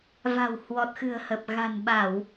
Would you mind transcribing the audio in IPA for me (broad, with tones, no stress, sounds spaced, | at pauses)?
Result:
v a̤˨˩ w h w ɔ˨˩ t̚ x ɨ̤˨˩ ə̯ h ə˨˩ p̚ ɣ a̤˨˩ n ɓ a˧˩˨ w